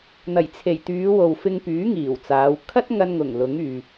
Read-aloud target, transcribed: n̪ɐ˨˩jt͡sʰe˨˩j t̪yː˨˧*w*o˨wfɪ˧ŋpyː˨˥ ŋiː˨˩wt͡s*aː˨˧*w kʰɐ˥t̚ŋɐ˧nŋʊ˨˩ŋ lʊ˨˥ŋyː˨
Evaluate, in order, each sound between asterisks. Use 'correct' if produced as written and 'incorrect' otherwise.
correct, correct

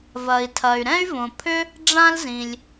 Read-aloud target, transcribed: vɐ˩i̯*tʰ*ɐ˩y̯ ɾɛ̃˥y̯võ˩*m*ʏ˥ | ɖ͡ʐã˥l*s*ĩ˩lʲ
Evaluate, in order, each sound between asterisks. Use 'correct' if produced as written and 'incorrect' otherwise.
correct, incorrect: pʰ, incorrect: z

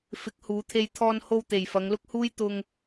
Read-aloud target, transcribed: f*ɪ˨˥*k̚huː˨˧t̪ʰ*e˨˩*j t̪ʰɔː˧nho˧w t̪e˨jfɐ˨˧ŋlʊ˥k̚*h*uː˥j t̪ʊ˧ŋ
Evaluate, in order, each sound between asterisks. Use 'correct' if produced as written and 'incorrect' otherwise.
correct, incorrect: e˧, correct

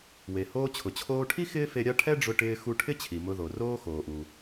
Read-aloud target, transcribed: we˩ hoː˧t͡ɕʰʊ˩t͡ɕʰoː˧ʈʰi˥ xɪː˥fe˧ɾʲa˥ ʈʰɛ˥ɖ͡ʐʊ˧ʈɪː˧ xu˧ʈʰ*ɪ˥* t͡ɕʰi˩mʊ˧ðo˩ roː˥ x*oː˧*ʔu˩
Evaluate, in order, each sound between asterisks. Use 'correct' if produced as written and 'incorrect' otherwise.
correct, incorrect: oː˩

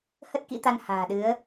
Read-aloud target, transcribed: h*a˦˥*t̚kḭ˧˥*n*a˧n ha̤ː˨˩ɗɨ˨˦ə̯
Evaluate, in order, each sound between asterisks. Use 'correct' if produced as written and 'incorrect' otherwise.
incorrect: ə˦˥, incorrect: t̪

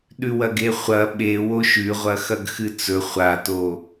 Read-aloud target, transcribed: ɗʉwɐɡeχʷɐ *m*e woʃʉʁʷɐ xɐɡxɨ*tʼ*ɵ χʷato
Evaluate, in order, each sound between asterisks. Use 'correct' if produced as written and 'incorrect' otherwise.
incorrect: ɓ, incorrect: t͡s

